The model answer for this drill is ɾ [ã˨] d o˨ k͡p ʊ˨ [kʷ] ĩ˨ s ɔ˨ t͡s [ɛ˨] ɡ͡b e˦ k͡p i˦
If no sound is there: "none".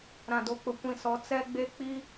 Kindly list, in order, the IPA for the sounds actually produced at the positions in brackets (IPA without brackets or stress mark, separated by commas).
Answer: ã˨, kʷ, ɛ˦